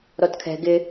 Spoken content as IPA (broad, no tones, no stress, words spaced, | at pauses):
ɾɔtkʰɛ̤ ɡɪ